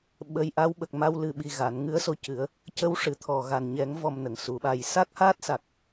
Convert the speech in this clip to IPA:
ɓə˧˥jʔa˧˥w ɓə˨˩k̚ma˧w lɨ˧ ɓi˧ɣa˨˩˦n ŋɨ˧˥ə̯so˧cɨ˨˩˦ə̯ | cə˧˥wʂɨ˨˩t̪ʰɔ˨˩ ɣa˨˩nɲɛ˨˩˦ŋ vɔ˧mnə˨˩˨ŋsu˨˩˦ɓa˧j sa˦˥k̚haː˦˥t̚sa˨˩k̚

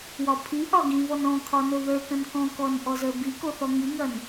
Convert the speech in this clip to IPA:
wɒpʰiʔɒ ɡĩvɔn ɔ̃kʰɒ noðə˞kɐ̃n kɔ̃kɔn ʔɔzə˞biko θɔŋiŋɐn

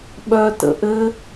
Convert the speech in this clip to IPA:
ɓœtə̰ ʔɘ

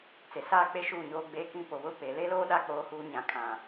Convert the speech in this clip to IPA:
t͡se˨saː˦k͡pe˦ ʃuː˦˨ɲoː˦ɡ͡beː˦ kĩ˦ po˨βʊ˦˨ pe˨le˦loː˦ɗa˦˨ k͡poː˦huː˦ ɲã˦ kʰã˦˨

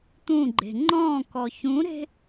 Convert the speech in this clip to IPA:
t̪ũɡ͡ǃe̤ ŋ͡ǃɔ̃ːk ɔçũɾe̤

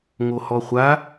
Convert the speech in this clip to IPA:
ŋohɔχʷa

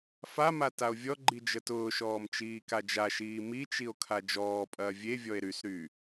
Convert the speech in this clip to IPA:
fama tao̯vʲɔɡ͡ǃi d͡ʒətʊːʃɔːm t͡ʃiːkad͡ʒaʃiː mit͡ʃio̯ kʰad͡ʒɔːpʼɐː vʲevʲɔe̯ ɾysɾyː

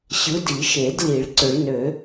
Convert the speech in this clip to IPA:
ɕɯ˨˦di˨˩˦ʃe˨˩˦dli˨˩˦ɭ ǀʏ˨˩˦ɭnø˨˩˦

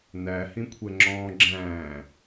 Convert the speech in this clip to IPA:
næhĩkʷʰɛŋ͡ǁɔ̃ː ɡ͡ǁæ̃ː

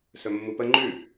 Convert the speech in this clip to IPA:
sɵmːupə ŋ͡ǃʉ

